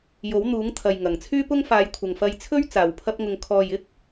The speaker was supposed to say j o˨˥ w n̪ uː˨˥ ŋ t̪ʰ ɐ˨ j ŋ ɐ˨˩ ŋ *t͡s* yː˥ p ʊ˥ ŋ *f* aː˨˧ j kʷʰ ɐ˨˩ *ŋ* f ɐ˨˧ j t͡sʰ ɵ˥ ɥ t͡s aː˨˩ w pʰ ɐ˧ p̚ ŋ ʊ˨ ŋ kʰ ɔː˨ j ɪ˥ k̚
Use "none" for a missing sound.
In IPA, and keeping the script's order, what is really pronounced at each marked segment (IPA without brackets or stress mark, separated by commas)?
t͡sʰ, f, ŋ